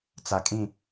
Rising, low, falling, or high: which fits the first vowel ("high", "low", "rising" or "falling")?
low